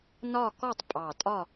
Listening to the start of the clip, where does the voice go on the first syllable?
falling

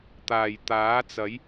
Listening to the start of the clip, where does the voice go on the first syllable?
low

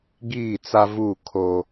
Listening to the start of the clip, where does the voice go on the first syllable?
falling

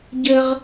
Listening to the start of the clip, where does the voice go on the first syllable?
high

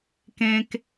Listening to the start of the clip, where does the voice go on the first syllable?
low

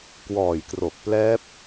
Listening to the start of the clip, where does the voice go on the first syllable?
low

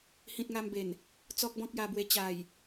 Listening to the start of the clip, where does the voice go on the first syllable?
high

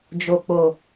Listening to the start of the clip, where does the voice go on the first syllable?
low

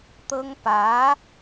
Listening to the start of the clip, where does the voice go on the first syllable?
high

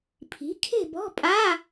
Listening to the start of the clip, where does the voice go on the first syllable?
rising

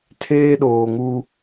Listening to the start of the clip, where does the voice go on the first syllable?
high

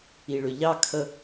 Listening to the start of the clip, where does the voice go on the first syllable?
low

